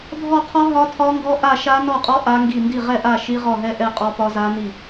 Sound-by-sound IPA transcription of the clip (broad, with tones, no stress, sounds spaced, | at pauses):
dʱ ɔ˥˨ qʰ ɔ˦˥ ɦ ɒ˦˥ tʰ ɒ˦˥ ŋ ɡ ɔ˦˥ ʔ a˥˨ ʃ a˦˥ n ɔ˥˨ qʼ ɔ˦˥ ʔ a˦˥ ŋ ɡ i˥˨ n d i˥˨ ʁ ɛ˥˨ ʔ a˥˨ ʃ i˦˥ ʁ ɔ˥˨ ɦ ɛ˦˥ ʔ ɛ˥˨ qʼ ɔ˦˥ p ɒ˦˥ z a˦˥ n i˥˨